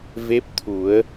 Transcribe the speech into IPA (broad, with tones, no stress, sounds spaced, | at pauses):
v e˦˥ p̚ t̪ʰ u˨˩˦ ə̯